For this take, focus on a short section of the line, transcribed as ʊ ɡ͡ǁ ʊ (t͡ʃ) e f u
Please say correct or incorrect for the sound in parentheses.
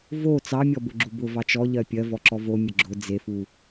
incorrect